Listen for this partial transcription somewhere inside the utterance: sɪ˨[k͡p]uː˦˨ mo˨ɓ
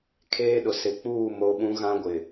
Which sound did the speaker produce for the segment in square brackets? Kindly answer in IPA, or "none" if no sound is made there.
k͡p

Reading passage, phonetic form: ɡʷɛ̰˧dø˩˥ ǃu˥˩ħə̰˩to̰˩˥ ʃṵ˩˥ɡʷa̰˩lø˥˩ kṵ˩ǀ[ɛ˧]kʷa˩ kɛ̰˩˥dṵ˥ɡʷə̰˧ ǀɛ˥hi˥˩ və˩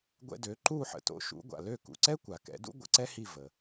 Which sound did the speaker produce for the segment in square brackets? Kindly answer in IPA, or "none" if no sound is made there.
ɛ˥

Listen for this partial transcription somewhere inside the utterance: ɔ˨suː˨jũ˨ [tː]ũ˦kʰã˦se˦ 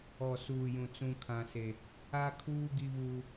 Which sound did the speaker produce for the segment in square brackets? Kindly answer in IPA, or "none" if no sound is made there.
t͡s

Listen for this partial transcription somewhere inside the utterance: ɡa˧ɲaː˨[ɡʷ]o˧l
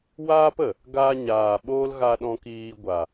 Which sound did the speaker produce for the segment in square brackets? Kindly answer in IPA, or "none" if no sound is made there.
ɓ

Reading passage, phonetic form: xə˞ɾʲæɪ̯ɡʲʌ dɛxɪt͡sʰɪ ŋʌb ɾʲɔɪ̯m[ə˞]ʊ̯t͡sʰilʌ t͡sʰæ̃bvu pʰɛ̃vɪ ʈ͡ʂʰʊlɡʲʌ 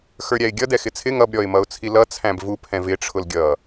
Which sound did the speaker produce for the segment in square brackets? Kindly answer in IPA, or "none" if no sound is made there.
ʌ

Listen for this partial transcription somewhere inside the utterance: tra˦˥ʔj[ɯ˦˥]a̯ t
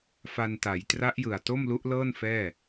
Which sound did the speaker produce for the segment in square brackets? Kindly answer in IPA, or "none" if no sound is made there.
ɯ˨˩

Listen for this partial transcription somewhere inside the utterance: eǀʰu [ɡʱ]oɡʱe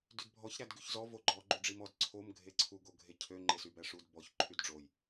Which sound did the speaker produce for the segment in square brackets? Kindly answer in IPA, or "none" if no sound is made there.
ɡ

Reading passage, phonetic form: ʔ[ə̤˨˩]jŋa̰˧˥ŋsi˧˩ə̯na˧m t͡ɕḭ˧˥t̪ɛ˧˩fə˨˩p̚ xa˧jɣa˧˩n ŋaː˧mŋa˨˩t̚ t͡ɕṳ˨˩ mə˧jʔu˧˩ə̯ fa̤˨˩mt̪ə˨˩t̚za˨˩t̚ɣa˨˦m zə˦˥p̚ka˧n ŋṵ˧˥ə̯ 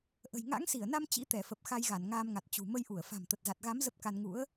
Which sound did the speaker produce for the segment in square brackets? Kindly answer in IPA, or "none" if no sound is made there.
ə̤˨˩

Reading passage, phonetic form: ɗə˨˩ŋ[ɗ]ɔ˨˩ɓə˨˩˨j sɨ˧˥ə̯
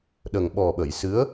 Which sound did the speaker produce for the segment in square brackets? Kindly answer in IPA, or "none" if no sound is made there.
ɓ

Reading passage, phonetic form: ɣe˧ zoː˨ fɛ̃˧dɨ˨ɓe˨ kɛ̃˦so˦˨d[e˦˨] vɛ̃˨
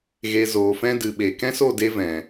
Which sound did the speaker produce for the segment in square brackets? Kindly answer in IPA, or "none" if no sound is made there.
e˧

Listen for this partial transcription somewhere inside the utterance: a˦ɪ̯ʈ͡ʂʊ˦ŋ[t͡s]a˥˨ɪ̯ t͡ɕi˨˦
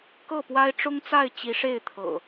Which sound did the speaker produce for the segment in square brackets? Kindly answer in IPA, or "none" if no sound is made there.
t͡s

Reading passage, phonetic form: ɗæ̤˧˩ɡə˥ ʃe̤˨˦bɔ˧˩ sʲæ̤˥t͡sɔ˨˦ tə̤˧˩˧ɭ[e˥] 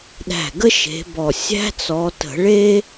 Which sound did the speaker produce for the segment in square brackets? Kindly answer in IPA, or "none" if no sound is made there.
e˥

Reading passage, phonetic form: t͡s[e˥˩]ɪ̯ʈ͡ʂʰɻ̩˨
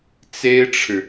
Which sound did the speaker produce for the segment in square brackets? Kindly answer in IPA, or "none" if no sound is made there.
e˥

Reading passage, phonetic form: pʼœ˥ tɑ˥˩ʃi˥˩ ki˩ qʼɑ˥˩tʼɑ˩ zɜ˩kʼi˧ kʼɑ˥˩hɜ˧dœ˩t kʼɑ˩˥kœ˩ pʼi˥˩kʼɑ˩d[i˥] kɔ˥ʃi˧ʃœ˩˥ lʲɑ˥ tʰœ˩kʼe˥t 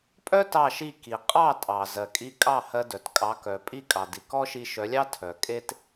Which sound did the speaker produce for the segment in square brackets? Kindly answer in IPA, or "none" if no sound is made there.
i˩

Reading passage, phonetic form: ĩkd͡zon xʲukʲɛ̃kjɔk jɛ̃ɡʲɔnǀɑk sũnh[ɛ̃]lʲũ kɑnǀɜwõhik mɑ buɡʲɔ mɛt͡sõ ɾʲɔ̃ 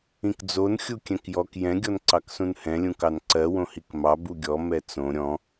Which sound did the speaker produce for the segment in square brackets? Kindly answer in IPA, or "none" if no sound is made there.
ɛ̃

